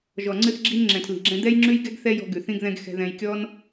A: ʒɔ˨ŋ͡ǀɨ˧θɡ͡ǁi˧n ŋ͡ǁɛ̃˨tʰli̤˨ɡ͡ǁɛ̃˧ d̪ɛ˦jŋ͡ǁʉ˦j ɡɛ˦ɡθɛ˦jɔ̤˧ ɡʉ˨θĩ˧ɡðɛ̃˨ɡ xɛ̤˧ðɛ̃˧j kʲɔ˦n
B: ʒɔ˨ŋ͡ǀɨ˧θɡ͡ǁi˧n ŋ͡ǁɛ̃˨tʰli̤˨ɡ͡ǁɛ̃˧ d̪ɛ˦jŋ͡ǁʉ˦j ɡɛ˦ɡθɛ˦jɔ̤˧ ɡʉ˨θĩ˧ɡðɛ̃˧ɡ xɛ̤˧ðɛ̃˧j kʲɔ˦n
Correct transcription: B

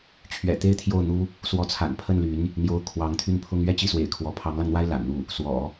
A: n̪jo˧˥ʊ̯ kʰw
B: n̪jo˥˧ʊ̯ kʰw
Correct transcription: A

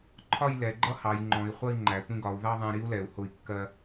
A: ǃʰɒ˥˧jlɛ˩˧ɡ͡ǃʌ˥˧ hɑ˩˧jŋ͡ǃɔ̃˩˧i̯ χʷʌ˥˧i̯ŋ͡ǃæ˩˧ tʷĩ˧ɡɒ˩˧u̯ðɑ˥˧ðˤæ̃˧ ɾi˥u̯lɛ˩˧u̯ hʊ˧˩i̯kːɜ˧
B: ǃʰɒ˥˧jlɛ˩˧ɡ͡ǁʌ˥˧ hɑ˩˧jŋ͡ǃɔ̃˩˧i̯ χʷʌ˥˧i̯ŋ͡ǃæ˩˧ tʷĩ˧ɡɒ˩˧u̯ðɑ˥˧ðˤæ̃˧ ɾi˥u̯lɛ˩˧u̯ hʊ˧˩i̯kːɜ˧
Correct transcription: A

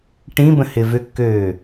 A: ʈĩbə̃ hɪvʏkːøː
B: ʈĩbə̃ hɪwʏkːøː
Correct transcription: A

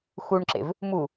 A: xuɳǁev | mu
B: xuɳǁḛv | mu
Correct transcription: B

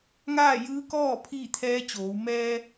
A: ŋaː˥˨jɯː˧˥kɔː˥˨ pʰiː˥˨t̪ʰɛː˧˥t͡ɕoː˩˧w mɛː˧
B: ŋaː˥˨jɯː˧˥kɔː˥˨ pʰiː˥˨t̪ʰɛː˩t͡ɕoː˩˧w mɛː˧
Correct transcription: A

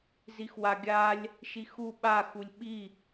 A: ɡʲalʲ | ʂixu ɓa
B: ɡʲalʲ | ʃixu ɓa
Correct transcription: B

